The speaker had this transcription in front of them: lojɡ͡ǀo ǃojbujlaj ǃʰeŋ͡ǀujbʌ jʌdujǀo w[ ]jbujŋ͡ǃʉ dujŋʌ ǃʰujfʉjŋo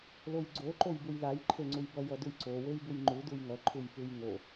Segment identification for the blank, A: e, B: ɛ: A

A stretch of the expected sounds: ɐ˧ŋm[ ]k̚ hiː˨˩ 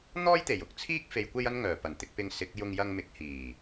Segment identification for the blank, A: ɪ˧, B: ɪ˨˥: B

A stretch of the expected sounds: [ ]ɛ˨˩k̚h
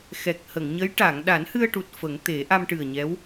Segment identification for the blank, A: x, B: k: A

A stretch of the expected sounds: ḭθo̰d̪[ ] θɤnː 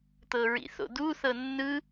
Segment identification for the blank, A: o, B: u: B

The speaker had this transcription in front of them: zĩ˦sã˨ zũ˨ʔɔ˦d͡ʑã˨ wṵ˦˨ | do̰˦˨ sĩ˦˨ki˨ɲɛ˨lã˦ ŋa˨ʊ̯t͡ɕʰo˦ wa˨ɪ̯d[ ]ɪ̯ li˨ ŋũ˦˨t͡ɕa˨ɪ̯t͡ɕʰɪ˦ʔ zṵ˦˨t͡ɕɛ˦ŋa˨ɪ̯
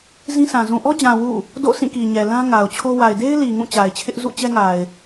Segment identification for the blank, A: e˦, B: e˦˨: A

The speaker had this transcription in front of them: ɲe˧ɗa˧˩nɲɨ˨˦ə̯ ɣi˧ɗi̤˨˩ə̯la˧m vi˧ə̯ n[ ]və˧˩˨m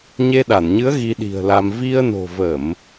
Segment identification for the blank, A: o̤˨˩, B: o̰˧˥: A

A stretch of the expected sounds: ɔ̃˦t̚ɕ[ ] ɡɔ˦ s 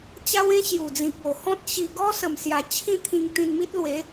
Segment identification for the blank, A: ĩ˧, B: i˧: B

